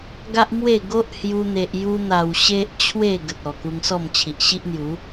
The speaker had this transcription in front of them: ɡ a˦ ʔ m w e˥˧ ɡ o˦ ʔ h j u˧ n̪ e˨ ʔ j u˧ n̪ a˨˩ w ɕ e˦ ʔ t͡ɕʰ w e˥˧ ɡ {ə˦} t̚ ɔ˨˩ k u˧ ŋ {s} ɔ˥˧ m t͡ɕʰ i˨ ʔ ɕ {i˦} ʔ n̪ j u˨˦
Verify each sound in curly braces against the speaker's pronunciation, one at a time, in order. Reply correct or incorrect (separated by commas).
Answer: incorrect, correct, correct